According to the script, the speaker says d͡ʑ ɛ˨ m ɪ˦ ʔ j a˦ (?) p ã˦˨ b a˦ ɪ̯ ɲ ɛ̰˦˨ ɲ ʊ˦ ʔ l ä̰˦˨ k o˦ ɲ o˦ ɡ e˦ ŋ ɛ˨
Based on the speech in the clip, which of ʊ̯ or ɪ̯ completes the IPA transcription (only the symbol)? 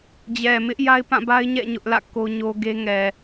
ɪ̯